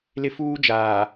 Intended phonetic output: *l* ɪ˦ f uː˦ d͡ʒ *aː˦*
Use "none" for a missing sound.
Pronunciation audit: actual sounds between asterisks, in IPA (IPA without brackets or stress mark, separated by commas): l, aː˨